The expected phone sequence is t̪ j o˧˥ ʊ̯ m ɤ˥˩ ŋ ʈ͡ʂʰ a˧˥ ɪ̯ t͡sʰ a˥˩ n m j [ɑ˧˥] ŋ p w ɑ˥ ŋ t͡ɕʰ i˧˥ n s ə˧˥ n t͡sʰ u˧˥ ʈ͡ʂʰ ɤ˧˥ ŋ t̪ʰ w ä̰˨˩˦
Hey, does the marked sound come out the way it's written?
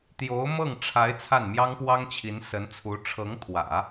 no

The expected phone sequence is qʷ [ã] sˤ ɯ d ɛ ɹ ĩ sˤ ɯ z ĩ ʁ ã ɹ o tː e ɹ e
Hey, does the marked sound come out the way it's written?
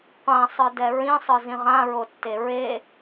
yes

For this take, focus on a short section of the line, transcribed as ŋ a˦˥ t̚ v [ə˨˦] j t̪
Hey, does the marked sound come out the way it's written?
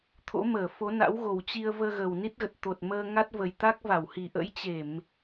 no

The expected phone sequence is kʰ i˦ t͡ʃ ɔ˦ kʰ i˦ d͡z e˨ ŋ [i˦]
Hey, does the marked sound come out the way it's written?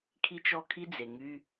no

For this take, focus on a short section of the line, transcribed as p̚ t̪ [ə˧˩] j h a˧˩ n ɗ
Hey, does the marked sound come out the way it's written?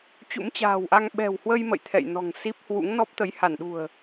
no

